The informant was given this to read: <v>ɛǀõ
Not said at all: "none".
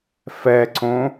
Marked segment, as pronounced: f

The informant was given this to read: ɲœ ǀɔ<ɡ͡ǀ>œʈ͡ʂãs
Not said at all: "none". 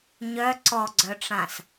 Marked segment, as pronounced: ɡ͡ǀ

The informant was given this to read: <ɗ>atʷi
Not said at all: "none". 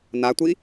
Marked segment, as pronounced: n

